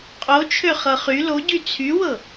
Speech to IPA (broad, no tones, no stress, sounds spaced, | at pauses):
qʼ o t͡ʃʰ ø χ ɤ χ y l o ɟ y t͡sʰ y w ɤ